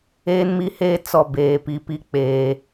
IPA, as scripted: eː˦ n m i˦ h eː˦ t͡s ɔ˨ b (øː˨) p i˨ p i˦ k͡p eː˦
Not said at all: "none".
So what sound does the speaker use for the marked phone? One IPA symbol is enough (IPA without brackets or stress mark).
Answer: eː˨